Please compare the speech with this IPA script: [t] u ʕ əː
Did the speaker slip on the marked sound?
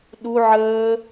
yes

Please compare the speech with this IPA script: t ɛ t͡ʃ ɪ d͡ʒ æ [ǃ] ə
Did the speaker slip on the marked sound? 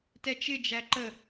no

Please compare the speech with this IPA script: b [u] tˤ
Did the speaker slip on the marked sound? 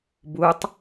no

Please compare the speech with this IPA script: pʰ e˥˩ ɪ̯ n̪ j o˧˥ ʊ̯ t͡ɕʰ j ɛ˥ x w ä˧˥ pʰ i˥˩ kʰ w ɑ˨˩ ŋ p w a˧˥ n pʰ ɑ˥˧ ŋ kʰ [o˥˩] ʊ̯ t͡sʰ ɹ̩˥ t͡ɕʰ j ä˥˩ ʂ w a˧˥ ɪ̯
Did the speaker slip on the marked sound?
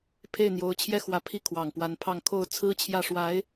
no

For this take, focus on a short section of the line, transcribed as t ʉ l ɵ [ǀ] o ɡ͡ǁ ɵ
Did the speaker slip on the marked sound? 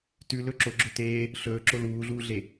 yes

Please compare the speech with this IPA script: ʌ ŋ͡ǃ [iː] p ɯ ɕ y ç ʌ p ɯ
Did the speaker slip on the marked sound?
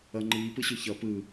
no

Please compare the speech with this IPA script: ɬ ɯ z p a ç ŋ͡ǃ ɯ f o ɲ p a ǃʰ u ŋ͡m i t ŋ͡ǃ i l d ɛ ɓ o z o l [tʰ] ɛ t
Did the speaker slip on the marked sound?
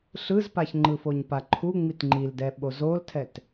no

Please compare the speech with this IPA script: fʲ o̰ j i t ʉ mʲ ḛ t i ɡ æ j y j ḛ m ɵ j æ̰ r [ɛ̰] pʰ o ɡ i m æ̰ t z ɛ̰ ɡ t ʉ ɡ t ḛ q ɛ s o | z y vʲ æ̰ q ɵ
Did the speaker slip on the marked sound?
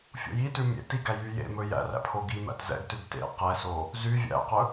yes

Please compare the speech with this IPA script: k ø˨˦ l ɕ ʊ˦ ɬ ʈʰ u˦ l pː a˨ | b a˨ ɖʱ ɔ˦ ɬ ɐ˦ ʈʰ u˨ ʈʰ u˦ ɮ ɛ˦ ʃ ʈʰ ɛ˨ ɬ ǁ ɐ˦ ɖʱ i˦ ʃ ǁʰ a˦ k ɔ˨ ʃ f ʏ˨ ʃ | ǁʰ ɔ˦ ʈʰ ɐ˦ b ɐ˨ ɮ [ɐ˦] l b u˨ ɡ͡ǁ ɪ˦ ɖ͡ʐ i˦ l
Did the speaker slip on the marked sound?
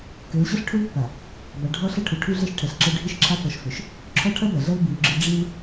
no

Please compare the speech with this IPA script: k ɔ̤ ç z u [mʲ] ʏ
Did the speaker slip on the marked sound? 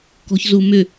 yes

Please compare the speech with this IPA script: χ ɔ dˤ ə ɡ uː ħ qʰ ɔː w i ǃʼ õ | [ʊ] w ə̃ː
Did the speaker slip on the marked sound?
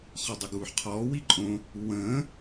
yes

